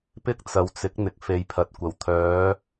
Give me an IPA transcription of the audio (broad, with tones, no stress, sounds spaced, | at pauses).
p ɪ˥ k̚ t͡s ɐ˨ w t͡s ɪ˨˥ k̚ n̪ ɪ˨ k̚ f e˨˧ j pʰ ɐ˨ t̚ kʷ ɐ˨˩ w t̪ʰ œː˨˥